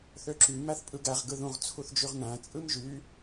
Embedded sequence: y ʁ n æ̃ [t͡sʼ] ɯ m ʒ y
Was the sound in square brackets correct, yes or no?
yes